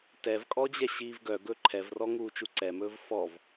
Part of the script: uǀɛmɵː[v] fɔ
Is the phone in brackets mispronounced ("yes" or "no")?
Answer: no